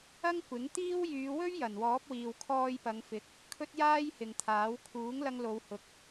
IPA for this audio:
ɐ˥ ŋ kʷ ɪ˨˥ ŋ t̪ iː˥ w j yː˨˧ w ɵ˥ ɥ j ɐ˨˩ n w ɔː˨˥ p̚ w iː˨ w kʰ ɔː˧ j p ɐ˨˧ ŋ f ɪ˨˥ k̚ | kʰ ɵ˥ t̚ j aː˥ j h ɪ˨ ŋ t̪ʰ aː˨˥ w kʰ uː˨˥ ŋ l ɐ˧ ŋ l o˨˧ w h ʊ˨ k̚

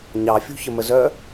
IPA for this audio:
ɲ ɑ fʲ ṳ ç ə m ə z œ

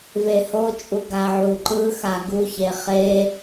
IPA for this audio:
v e h o t͡ʃʼ u ɡ a ʕ u ǃ ɯ x a ɡ u ç e χ e

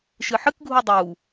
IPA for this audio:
ʃ ɨ ħ ɨ k ɡʱ u dˤ u

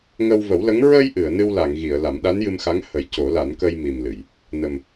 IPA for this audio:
ŋ ə˧ w v ə˨˩˦ w l ə˧˥ ŋ ɹ ə˧ j ʔ ɨ˨˩˨ ə̯ n ɨ˧ w l a˨˩˨ ŋ ɣ i˨˩˨ ə̯ l a˨˩˦ m ɗ a˧˥ n j ɨ˧ m x a˧˥ ŋ h ə˨˩˦ j c o˨˩˦ l a˨˩˦ n k ə˧ j m i˨˩ m l ɨ˨˩˨ j | n ə˨˩ m

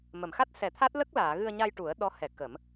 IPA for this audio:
m ə˨˩˨ m x a˦˥ t̚ s ɛ˨˩˦ t̪ʰ a˦˥ t̚ l ə˦˥ k̚ l aː˨˩˨ ɣ ɨ˧ ə̯ ɲ a˧ j ʈ u˨˩˦ ə̯ ɗ ɔ˧˥ h ɛ˨˩˦ k ə˨˩˦ m

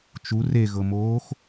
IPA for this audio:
t͡ʃ u r e ɣ ɤ m oː x

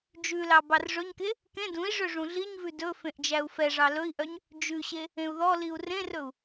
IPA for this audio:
d͡ʒ ʉ l ɑ b ɑ r ʐ ɵ ɲ k e | k ẽ d ũ i̯ ʐ ø ʐ ũ ɮ i ɲ v ʉ d ɵ f ẽ ʔ d͡ʒ æ u̯ f ɛ ʐ ɑ l ɵ i̯ ʔ œ ɲ | d͡ʒ ʉ ɕ e | ẽ u̯ ð ɔ l i u̯ r ẽ r ɵ u̯

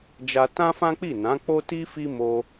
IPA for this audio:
d͡ʒ a˧ t ã˦ f ã˦ k͡p i˦˨ n ã˨˦ k͡p o˦ t i˦ f i˦ m o˧

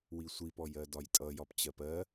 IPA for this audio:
w i sʷ i p ɔ j ɜ d ɒ j tʼ ʌ j ɒ p t͡ɕ ɜ p ɜ

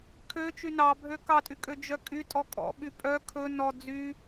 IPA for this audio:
kʰ ø t͡ʃ y n ɑ bʱ ø k ɑ tʼ y kʼ ø d͡ʒ œ kʼ y tʼ ɔ kʼ ɔ̰ ɓ y pʼ œ kʰ ɵ n ɔ d͡z y

